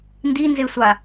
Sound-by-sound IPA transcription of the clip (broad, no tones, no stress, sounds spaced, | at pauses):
n d i n z e sʷ a